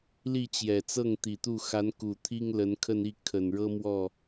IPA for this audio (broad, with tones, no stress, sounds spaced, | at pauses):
l i˥˩ t͡ɕ j ɛ˨˩ t͡s ɤ˥˩ ŋ t̪ i˨˩ t̪ u˥˩ x a˧˥ n k u˨˩ t̪ʰ i˥ ŋ l ə˧˥ n kʰ ə˥˧ n i˥˩ kʰ ə˨˩ n ɻ ɤ˥ m w ɔ˥˩